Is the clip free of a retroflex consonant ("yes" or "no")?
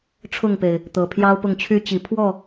no